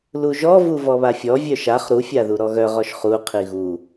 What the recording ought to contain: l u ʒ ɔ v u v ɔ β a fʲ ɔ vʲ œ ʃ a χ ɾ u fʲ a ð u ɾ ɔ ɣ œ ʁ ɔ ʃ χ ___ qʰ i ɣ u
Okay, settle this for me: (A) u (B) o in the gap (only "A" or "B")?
A